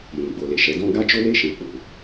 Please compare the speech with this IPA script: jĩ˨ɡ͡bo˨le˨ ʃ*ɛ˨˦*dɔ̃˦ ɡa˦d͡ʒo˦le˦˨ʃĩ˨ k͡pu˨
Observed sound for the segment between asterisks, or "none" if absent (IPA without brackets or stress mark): ɛ˨˦